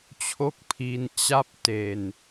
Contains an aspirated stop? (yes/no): yes